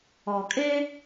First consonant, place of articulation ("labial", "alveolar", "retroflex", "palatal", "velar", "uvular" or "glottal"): velar